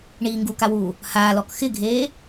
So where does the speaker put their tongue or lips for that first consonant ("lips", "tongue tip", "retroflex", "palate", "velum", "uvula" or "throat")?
retroflex